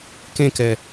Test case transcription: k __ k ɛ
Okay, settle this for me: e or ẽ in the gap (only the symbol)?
ẽ